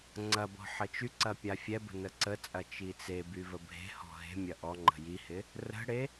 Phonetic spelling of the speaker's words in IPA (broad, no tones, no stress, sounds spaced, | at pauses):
ŋ͡ǀ ɐ b ɔ̤ ħ ə t͡ʃ y ǀ ɐ pʲ a fʲ ɛ b ə̤ n ə ǀ ə t͡sʼ ɐ t͡ʃ i t͡s e b y v ə bʱ e̤ h ɔ̤ ɦ e̤ mʲ ɐ ʔ ɔ ŋ͡ǃ ə̤ j i h ɪ | r ə̤ ɽ e